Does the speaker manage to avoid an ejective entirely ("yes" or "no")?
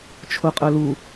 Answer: no